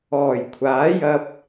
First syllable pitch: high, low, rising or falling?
low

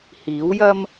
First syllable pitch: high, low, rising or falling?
rising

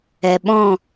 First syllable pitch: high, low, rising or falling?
low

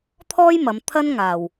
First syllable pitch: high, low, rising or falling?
high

